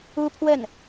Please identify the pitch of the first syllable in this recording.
high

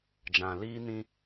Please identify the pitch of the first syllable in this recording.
low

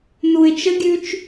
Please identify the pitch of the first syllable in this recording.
low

